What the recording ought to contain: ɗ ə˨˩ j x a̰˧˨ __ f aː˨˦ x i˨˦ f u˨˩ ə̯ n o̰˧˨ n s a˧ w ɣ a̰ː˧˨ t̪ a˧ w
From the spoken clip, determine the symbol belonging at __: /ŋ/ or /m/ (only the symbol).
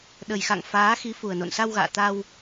ŋ